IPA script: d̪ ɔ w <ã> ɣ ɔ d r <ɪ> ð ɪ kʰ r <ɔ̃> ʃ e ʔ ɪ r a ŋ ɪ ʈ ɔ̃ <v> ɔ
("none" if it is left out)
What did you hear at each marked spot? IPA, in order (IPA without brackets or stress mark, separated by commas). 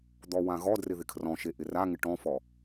ã, ɪ, ɔ̃, f